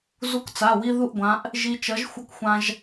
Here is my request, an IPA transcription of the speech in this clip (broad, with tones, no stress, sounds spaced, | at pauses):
z u˧ k t͡s a˩˧˩ w i˧ ð u˥˩ ʔ ɡʷ ã˨˥ ʔ | ʒ i˧ t͡ʃ ʌ˨˥ ʒ xʷ ʌ˧ k xʷ ã˧ ʒ